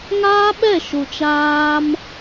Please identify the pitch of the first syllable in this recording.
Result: high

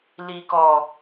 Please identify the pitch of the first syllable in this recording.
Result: low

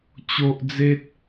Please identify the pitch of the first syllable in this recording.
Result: low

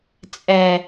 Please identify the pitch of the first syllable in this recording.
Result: low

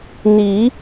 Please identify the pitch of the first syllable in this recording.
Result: rising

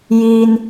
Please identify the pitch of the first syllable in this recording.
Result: low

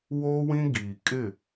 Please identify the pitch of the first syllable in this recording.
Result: high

